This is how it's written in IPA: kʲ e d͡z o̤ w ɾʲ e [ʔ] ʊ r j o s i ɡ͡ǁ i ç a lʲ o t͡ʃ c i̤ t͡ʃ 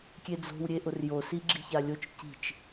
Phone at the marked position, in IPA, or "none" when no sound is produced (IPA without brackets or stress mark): ʔ